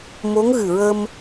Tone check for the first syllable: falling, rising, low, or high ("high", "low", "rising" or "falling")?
rising